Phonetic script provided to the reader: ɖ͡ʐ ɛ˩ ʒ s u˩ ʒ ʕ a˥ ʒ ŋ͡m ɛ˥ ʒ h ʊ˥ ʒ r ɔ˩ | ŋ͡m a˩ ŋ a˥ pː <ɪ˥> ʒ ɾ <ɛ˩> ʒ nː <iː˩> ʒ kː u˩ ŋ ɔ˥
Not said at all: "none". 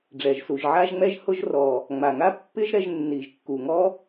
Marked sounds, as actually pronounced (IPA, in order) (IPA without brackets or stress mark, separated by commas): ɪ˥, ɛ˧, i˩